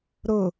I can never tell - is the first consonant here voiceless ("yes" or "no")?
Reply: no